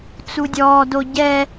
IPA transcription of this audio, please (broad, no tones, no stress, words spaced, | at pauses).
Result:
t͡sudʲɔːdo ɟɛ